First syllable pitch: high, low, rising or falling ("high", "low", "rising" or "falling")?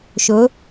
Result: rising